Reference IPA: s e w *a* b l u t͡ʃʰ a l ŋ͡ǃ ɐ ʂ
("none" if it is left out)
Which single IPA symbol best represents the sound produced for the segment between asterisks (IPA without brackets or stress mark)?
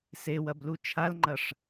ɐ